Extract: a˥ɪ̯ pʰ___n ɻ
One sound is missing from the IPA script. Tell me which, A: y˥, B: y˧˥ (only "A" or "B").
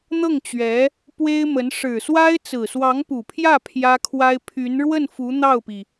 B